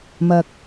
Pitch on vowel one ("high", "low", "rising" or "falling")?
low